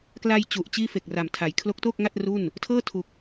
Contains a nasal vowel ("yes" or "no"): no